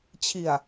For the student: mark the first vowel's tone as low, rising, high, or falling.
low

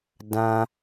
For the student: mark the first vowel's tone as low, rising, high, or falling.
high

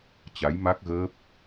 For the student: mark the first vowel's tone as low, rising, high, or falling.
rising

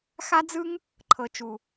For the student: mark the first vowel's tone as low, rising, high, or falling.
high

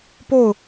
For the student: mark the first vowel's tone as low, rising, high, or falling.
falling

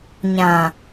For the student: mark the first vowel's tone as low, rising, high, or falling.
low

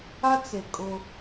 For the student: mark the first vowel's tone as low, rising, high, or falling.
high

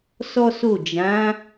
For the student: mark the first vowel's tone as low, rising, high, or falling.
high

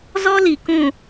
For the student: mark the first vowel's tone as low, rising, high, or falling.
high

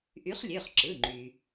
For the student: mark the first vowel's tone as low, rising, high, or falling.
rising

